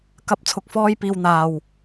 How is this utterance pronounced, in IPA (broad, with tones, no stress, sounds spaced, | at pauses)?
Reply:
k ɐ˧ p̚ t͡sʰ ʊ˨ k̚ f ɔː˧ j p iː˨ w n̪ aː˨ w